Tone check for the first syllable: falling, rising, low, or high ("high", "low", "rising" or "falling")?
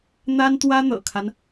high